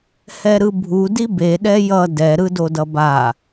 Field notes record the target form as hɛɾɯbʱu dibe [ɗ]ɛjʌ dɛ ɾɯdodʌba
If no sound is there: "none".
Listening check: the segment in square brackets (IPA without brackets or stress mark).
ɗ